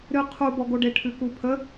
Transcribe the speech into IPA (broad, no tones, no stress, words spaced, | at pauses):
ɾɨ qʰubɔɡoɖe ʈʰʉkupʰə